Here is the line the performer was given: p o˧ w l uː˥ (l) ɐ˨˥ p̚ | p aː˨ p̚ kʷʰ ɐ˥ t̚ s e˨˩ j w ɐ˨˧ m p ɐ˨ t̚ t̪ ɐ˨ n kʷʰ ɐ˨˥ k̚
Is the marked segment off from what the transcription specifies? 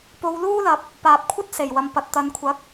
no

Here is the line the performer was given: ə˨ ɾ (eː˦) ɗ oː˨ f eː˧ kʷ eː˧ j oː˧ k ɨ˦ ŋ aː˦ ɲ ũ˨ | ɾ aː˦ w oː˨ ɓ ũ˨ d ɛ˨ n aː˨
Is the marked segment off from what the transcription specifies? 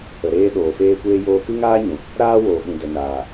yes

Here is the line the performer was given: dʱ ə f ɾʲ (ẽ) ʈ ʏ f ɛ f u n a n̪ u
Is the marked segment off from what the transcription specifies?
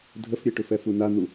yes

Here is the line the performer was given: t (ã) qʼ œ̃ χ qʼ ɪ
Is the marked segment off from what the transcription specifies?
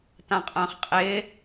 no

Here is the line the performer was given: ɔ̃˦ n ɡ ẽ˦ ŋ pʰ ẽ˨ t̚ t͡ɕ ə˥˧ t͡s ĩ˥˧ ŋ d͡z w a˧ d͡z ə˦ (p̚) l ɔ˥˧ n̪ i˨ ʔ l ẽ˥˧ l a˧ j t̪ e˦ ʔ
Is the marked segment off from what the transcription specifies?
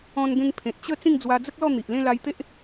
yes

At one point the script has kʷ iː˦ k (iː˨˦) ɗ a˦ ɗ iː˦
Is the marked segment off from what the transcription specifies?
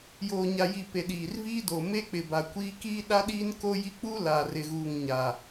yes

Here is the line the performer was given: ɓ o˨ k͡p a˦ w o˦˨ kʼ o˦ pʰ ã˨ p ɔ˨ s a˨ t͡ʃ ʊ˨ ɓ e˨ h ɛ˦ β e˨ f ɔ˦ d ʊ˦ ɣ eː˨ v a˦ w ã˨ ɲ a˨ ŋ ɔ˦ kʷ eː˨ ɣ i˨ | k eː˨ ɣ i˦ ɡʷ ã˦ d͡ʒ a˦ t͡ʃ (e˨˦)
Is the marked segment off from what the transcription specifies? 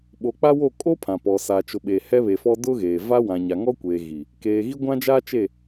yes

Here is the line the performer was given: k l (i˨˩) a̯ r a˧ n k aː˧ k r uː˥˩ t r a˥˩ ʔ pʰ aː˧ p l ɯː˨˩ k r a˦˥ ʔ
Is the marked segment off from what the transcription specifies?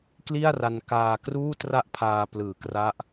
yes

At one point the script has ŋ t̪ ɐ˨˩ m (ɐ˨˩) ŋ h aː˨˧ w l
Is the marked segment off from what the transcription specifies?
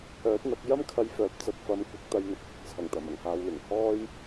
no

